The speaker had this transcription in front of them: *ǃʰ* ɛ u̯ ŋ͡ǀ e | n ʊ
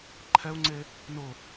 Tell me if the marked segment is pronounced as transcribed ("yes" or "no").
yes